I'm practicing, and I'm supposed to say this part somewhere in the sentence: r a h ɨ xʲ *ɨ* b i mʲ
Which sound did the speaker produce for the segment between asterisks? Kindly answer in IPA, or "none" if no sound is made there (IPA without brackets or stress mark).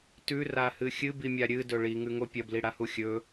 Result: ɨ